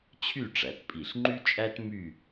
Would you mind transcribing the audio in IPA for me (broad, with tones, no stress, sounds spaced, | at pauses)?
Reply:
t͡ɕʰ y˥˧ ʈ͡ʂ æ˩˧ t pʼ i˧˩ ɬ ŋ͡ǃ y˥ t͡ʃʼ æ˥ t m y˥˧